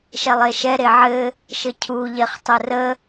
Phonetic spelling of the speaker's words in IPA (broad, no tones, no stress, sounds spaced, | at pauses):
ʃ ɛ lˠ e ʃ ɛ ɾ e ʕ ɘ | ʃ ɘ cʰ u ʎ e χ tˤ ɘ r ə